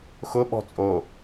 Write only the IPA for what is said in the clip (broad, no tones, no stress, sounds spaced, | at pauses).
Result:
x ʊ ɓ ɔ̤ t͡sʼ o